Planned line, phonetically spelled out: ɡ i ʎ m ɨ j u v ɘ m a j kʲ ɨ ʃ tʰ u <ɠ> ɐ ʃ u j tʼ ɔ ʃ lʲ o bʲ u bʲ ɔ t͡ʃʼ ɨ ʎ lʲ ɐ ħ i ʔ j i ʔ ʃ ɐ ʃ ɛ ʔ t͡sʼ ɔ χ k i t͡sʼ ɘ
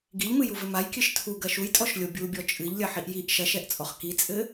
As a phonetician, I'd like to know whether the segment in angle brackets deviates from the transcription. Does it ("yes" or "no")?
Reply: yes